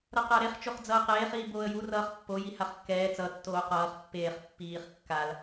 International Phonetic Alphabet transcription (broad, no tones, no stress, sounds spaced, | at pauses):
ɾ ʌ q a ɾ e χ t͡ʃ o χ d͡z ʌː q eː χ iː b oː ə̯ j u r ʌː χ pː o j i h a χ kː ɛː t͡s ʌ tː oː q ʌː χ pː eː χ pː iː χ kː a l